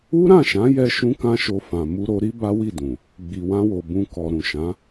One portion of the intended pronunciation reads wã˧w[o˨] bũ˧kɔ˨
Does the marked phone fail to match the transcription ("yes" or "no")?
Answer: no